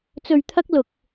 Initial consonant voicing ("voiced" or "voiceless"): voiceless